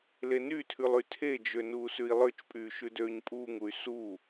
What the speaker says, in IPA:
l e n y tʰ ʉ lˠ y tʰ e d͡ʒ ø n uː s ʉ i̯ lˠ ø t͡ʃ pʼ yː ʃ ʉ d øː ɲ pʼ uː ŋ u y̯ s u

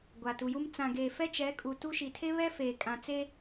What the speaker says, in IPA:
ɡʷ a˨ t u˨ j u˦ m t͡s ã˨ ɡ eː˨ f ɛ˦ t͡ʃ ɛ˨˦ kʼ u˨ t u˦ ʃ i˨ tʰ e˦ β ɛ˦ f eː˨ kʼ ã˨ t͡s e˦

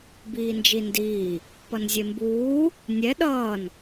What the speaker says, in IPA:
b iː n d͡ʒ i n d iː | p ʌ n zʲ e m b uː | nʲ ɛ ɗ ʌː n

